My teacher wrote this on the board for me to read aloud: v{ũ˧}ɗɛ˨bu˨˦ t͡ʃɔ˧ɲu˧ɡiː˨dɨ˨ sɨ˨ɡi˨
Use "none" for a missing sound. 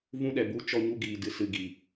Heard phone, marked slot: ũ˧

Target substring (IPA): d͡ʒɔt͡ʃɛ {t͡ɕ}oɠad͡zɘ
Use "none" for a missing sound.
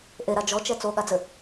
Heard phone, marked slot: t͡s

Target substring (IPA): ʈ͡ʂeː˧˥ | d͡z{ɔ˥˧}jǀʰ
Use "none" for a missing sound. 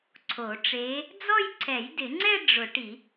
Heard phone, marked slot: ɔ˥˧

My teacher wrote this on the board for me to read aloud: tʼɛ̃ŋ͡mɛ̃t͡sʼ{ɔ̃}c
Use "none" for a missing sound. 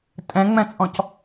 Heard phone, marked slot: ɔ̃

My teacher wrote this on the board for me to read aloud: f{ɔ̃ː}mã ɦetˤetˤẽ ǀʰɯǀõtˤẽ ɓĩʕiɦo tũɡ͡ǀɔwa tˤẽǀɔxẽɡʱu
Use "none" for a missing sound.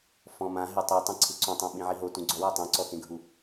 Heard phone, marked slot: ɔ̃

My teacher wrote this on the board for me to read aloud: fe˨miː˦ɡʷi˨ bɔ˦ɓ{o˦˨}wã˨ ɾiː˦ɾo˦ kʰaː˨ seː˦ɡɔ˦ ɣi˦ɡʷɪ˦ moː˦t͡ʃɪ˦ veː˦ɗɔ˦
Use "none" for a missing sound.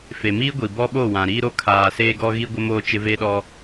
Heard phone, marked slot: o˦˨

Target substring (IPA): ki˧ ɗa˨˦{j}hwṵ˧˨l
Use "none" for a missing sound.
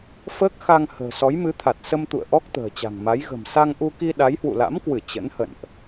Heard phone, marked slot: j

